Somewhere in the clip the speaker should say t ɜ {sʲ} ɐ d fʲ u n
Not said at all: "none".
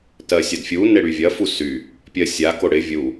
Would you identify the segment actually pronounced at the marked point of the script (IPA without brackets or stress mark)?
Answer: sʲ